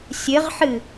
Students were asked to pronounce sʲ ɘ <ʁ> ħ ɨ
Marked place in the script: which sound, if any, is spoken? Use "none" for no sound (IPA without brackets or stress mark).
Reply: ʁ